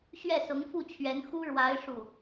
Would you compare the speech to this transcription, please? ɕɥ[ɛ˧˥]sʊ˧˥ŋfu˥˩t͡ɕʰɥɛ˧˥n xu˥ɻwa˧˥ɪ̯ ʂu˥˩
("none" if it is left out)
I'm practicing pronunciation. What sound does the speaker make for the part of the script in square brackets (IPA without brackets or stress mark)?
ɛ˥˩